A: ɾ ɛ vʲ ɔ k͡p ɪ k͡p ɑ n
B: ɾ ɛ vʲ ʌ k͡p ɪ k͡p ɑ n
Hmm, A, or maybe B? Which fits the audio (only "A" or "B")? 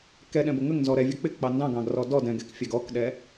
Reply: B